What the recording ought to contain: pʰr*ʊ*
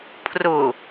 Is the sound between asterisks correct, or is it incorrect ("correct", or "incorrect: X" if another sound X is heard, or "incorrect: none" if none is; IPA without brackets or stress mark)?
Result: correct